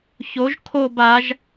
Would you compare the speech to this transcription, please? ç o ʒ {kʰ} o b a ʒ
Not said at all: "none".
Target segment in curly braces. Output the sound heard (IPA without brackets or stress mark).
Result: kʰ